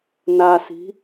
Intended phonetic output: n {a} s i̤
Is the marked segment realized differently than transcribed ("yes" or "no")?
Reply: no